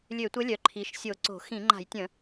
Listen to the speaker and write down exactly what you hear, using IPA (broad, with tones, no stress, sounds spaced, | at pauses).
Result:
lʲ ø˧˩˧ tʷ ə˧˥ lʲ œ˩˧ ǃʰ i˩˧ ʃ sʲ o˧˩˧ ǀ o̤˧˩˧ x ĩ˧˩˧ ŋ͡ǃ a̤˧˩˧ j tʲ ə̃˧˩˧